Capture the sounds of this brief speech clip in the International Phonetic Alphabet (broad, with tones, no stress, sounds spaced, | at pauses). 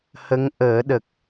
h ə˧˥ ŋ ʔ əː˨˩˦ ɗ ə˨˩ k̚